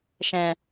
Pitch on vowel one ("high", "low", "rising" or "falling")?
low